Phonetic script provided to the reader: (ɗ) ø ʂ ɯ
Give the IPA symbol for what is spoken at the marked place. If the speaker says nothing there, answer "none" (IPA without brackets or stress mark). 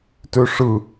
t